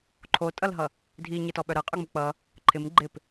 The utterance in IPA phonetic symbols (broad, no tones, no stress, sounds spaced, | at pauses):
ǃʰ o tʼ ʌ l ɦ ʌ | dʱ i ɲ ɪ t ɔ ɓ œ ɾ ɤ qʼ œ ŋ͡m u k͡p ʌ | ǃʰ ɪ m ɡ͡ǃ ɪ p